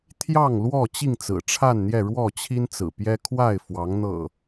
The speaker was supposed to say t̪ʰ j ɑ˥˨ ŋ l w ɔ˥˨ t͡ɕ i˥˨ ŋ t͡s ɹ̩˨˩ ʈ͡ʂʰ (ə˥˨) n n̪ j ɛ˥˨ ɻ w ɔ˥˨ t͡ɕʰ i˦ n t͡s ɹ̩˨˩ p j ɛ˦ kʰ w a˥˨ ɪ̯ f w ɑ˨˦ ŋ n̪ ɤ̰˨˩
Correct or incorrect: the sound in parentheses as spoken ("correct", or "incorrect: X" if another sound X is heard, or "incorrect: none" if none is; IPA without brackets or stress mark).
incorrect: a˥˨